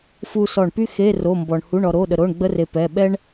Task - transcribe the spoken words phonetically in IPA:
f u˧ s ɔ˧˩ ɳ p y˥ x e˧˥˧ r o˧˥˧ m b ɔ˧ ɳ h u˧˥˧ ɳ ɔ˧ ɾ o˧˥˧ ɗ ə˧ ɾ o˧˥˧ ɳ ɡ͡b ə˥ r e˧ p ɛ˧˥˧ ɓ ɛ˥ ɳ

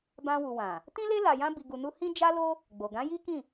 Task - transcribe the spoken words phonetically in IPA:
b ã˧ w u˨ w ã˨ | t ĩ˦ l e˦ l a˧ j ã˦ b i˧ ɡ u˧ n u˦ h ĩ˦ d͡ʒ a˦ l o˦ | ɡ͡b o˨ ɡ ã˨˦ j i˦ k ĩ˦˨

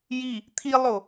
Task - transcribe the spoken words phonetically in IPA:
j i | t̪ʰ i lˠ o

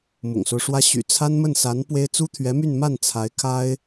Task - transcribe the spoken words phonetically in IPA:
m ʊ̰˨˩ ŋ s o˦ ʊ̯ ʂ w ä˥ ɕ y̰˨˩ t͡sʰ a˥ n m ə˥˩ n s a˧˥ n p w e˥ ɪ̯ t͡s u˥ t̪ʰ ɥ ɛ˧˥ m y˥˧ n m a˥˩ n t͡sʰ a˧˥ ɪ̯ kʰ a˥ ɪ̯

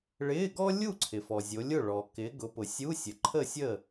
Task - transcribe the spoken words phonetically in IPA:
ɭ ɪː˧˥˧ ɡ ɔ˥ lʲ u˥˨ ǀʰ ɪ˨ f ɔ˨ zʲ o˨˦ lʲ ʊ˥˨ ɭ ɔ˨ k ɪː˨˦ ɡ ʊ˨˦ p ʊ˨ sʲ u˧˥˧ sʲ ə˨ ǃʰ ə˥˨ sʲ ə˥˨

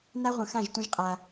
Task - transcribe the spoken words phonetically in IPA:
n a˦ ʁʷ ə̃˨ x ã˦˨ ʒ tʷ ə̃˦ ʒ qʼ a˦

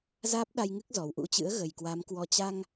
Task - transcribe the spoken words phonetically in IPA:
z aː˦˥ p̚ ɗ a˧ j ŋ ɨ˦˥ k̚ z ɔ˨˩ w ʔ ṵ˧˥ t͡ɕ ɨ̰˧˥ ə̯ ɣ ə˨˩ j k w a˨˦ m k w ɔ˧ t͡ɕ a˧ ŋ

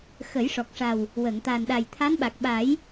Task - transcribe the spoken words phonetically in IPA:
x ə˨˩˦ j ʂ ɔ˨˩ k̚ ʂ a˨˩ w | w ə˨˩˨ ŋ t̪ a˨˩ n ɗ a˨˩ j t̪ʰ a˧˥ n ɓ a˨˩ k̚ ɓ a˨˩˦ j

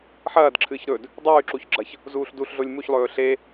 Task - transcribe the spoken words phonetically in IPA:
ħ ɐː d ǁʰ ɨː ç ɾ ɵ d | dˤ ʉː ǁ u ç ɡ͡ǁ ɐ ç | z uː ɬ d u ɬ ɮ o lʲ m u ç lˠ ɵː ɬ e

